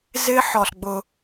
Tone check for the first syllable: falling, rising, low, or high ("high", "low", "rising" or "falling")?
high